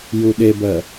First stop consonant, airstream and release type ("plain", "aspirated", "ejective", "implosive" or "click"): implosive